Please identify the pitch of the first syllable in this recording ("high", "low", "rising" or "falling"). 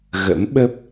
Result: rising